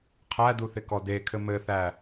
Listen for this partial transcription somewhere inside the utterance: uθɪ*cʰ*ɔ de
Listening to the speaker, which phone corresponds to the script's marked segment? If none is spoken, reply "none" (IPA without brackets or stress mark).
k